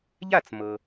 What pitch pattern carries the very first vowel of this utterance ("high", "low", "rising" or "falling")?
falling